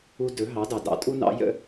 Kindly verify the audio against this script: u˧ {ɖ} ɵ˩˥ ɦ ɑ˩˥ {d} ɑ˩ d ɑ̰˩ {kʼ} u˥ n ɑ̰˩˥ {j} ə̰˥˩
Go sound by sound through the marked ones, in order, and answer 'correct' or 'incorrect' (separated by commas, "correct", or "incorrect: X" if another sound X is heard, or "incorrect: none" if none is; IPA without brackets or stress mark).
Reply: incorrect: d, correct, incorrect: tʼ, correct